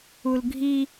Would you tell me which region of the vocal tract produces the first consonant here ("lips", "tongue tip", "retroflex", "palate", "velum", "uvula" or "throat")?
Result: tongue tip